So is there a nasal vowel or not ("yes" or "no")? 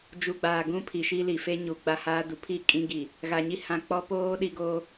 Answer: yes